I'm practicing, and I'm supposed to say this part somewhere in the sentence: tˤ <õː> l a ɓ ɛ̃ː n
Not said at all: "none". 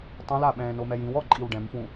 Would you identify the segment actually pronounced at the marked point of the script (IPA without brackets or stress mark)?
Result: õ